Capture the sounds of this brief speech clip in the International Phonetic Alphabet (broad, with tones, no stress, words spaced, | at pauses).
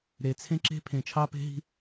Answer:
ɾe˨t͡sʰẽ˦ǁe̤˦ pʰẽ˨t͡ʃʰɑ˦pe̤˦ɦi̤˦